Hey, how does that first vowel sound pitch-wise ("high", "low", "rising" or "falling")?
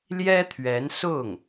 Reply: high